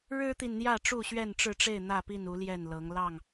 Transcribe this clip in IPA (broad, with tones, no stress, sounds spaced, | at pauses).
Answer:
ɻ ɻ̩˦ t̪ i˨ n n̪ j ä˥˨ ʈ͡ʂ u˥˨ ɕ ɥ ɛ˥˨ n ʈ͡ʂ ɻ̩˥˨ ʈ͡ʂ e˥˨ ɪ̯ n̪ ä˥˨ p i˥˨ n u˨˦ l j ɛ˥˨ n l ɤ˨˦ ŋ l ɑ˥˨ ŋ